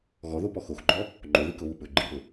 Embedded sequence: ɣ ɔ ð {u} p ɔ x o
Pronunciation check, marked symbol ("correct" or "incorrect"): incorrect